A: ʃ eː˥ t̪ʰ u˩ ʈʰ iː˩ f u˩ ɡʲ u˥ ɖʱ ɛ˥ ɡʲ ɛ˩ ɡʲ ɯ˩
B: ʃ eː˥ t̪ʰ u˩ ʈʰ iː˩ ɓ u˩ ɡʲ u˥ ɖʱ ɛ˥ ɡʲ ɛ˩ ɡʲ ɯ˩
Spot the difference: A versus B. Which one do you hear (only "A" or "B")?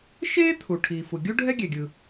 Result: A